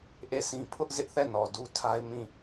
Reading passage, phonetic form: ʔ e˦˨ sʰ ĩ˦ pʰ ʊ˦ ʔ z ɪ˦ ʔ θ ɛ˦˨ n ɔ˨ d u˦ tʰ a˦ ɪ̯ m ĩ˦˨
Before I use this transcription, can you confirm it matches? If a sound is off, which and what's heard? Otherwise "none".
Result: none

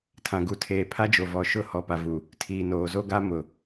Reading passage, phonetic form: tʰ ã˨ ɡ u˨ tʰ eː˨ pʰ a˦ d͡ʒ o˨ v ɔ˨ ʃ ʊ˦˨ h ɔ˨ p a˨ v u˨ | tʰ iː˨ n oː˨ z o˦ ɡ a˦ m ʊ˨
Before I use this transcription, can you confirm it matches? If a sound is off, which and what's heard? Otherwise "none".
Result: none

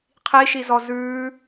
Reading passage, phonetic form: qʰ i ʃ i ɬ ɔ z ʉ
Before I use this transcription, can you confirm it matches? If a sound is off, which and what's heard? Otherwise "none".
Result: ɬ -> z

